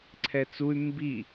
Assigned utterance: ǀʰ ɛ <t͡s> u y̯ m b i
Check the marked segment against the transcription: correct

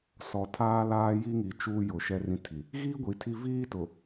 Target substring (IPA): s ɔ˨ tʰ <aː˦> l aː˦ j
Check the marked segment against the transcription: correct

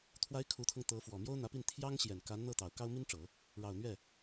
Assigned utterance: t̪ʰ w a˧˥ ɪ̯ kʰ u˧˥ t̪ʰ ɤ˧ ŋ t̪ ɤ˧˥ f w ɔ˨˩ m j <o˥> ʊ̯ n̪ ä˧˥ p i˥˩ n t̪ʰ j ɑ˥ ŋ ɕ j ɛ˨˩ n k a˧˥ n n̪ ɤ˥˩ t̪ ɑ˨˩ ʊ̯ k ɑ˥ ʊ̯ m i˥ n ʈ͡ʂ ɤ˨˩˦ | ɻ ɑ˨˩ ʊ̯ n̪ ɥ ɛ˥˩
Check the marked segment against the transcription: correct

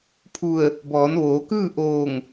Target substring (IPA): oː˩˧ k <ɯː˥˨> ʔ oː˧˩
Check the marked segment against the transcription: correct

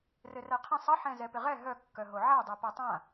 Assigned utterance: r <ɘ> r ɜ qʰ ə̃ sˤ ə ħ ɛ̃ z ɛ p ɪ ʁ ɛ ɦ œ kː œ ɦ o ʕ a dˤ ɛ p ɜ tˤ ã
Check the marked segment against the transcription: correct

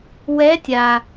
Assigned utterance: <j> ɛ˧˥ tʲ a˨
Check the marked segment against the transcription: incorrect: w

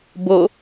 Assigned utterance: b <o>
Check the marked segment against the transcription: correct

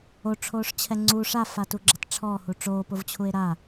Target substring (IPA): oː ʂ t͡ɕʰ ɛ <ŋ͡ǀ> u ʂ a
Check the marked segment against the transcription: correct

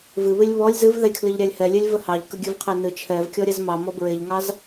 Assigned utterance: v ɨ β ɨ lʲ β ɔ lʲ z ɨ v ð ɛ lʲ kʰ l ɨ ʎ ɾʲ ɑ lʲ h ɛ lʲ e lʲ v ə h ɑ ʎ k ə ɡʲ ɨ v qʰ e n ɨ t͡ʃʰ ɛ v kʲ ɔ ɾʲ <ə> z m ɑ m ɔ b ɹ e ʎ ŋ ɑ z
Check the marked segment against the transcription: incorrect: ɛ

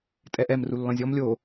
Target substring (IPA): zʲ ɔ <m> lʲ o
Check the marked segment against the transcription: correct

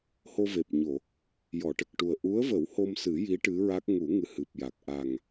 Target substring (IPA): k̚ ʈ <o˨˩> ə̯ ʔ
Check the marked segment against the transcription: incorrect: u˨˩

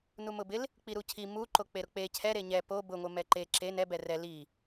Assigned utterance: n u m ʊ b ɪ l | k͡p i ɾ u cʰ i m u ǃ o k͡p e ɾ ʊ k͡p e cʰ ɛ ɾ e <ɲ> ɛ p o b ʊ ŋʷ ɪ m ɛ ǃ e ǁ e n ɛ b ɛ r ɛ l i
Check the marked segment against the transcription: correct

